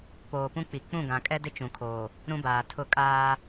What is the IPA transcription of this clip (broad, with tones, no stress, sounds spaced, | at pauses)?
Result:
p oː˨ p ũ˦ k͡p i˨ k͡p ũ˦˨ ɡ ã˨ kʼ ɛ˦ d ɪ˦ t͡ʃ ũ˨ kʰ oː˨ | ɾ ũ˦ b aː˨ tʰ ʊ˦˨ kʼ aː˦